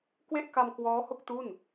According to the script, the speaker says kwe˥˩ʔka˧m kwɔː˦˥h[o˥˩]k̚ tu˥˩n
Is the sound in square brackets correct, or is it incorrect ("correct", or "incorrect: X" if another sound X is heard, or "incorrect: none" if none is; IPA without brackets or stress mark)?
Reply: correct